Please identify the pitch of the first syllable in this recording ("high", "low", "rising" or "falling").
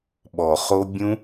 low